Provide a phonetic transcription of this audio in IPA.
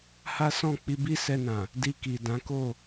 h a˦ s ɔ̃˦˨ k͡p i˧ b i˦ s ɛ˧ n ã˨ | d i˧ k i˨ d ã˨˦ k o˦˨

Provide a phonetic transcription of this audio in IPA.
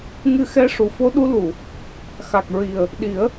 ŋ ɨ˧ x ɛ˧˥ ʂ u˨˩˨ f o˧˥ ɗ u˧˥ l u˨˩˨ | x a˨˩ k̚ ɹ i˨˩ ə̯ | ɗ i˨˩˦ ə̯

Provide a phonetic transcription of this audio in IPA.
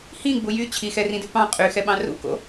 h ĩ ɡ͡b u j y t͡ɕʰ i x ɛ r ĩ d ʉ p ɑ̃ qʼ y x ɛ ɓ ɑ̃ r ṵ k o̰

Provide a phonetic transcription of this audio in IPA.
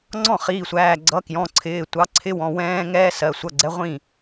ŋ͡ǀ ɔ̃˥˩ χ iː˩˧˩ sʷ æː˩˧˩ ɡ͡ǀ ʌ˨˥ k j ɔ̃˩˧˩ ǀʰ ɪː˩˧˩ tʷ ɑ˨˥ ǀʰ ɪ˦˥ w ɔ̃˩˧˩ w ɛ̃ː˦˥ ŋ ɛː˦˥ s ɜ˩˧˩ sʷ ʌ˩˧˩ ɡ͡ǀ ɛ˨˥ ʁʷ ĩ˥˩

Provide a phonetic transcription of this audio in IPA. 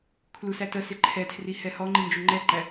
kʰ l u s æ t ə s ɪ ǃʰ ɛ tʰ r i h ɛ h ɔ ŋ͡ǃ i n d͡ʒ u ŋ͡ǃ ɛ ǃ æ

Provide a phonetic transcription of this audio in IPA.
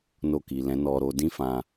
n o˧ k i˨ l ɛ̃˨˦ n ɔ˧ ɾ o˧ d ĩ˦ f ã˧

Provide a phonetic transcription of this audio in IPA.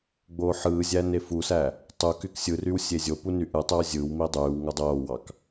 ɡ͡b oː ħ ɯː zʲ æ n e f u s æ | tˤ u k y k sʲ ɯ r y w sʲ e zʲ o p u n y ʔ ɯ tˤ ø w zʲ ɯ w m i dˤ yː w ŋ o dˤ oː w ɑ k

